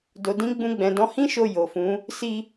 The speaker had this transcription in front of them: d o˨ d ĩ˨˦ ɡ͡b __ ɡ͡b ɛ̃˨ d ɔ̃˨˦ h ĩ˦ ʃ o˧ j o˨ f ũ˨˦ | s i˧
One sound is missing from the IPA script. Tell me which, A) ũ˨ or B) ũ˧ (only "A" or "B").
B